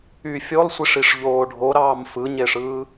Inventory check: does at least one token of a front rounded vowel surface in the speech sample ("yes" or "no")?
yes